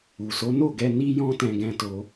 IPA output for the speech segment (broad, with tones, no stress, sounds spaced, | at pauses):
u˨ s o˨˦ n o˦˨ ɡ ɛ˧ n i˦ j ɔ̃˦ t ɛ̃˧ ɡ ɛ̃˧ t o˧